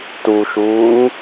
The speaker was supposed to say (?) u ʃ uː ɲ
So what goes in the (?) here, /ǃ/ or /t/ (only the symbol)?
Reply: t